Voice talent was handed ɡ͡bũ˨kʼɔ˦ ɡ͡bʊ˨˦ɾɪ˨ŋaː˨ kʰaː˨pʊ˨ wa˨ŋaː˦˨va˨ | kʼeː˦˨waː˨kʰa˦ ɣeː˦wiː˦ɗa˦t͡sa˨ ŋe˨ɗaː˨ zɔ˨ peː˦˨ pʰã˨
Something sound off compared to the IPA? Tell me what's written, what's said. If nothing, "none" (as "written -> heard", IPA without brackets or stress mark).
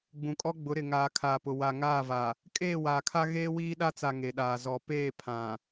none